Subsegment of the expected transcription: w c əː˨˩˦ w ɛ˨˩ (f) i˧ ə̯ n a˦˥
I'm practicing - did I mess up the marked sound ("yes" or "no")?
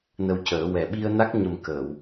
yes